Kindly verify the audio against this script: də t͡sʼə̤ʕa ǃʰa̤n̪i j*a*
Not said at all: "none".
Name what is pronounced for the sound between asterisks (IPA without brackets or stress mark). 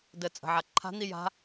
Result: a̤